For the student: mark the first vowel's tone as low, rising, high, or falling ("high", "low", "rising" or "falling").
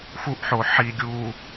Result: high